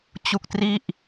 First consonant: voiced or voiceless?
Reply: voiceless